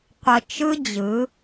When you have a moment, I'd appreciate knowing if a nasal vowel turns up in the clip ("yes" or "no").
no